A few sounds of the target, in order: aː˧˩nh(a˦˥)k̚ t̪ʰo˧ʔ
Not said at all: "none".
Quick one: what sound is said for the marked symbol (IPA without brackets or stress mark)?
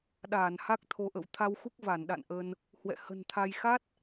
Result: a˦˥